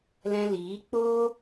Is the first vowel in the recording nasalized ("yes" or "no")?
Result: yes